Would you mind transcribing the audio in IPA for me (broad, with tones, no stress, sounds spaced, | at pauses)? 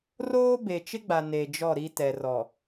r oː˦ b e˨ t͡ʃ ɪ˦ ɡ͡b a˨ n e˨ d͡ʒ ɔ˦˨ ɾ i˦ t ɛ˨ r ɔ˨